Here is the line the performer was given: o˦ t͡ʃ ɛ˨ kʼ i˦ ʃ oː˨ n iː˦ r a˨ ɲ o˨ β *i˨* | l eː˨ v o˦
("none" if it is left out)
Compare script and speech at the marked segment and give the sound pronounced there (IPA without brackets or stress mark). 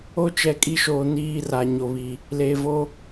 i˨